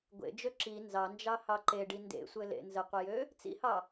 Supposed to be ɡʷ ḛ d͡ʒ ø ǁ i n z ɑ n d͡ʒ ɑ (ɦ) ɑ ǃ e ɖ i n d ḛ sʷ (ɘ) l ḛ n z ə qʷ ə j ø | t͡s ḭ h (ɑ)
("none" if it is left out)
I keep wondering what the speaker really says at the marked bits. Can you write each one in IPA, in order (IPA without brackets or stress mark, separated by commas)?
h, ɘ, ɑ